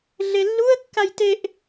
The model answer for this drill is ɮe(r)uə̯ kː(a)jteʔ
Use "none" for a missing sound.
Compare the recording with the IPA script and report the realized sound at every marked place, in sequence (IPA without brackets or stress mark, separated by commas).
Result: lː, a